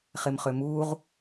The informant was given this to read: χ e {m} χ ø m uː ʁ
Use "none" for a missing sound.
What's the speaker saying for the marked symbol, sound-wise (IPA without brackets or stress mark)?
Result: m